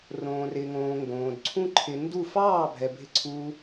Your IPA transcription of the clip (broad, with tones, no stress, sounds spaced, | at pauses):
r õː˨ r ɪ˨ ŋ õː˨ ŋ ɡ õː˨ d ǀʰ ũ˦ ǃʰ ɪ˧ n d u˦˨ f ɑː˦˨ bʱ ɛ˨ bʱ ɪ˧ ǀʰ uː˧